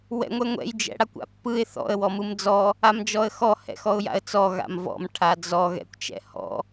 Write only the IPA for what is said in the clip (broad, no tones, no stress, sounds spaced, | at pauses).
w ɛ̰ ŋʷ ɛ ŋʷ ɛ̰ j d͡ʒ ɛ̰ ɽ a kʷ a̰ pː ɯ ɪ̯ θ ɔ̰ ə̯ w ɔ m ɯ m d͡z ɔ | a m d͡ʒ ɔ ə̯ x ɔ h ɛ̰ x ɔ ʊ̯ j a̰ ə̯ t͡s ɔ ɣ a̰ m v ɔ̰ m ʈʰ a d͡z ɔ ɣ ɛ̰ kʷ t͡ʃ ɛ̰ h ɔ̰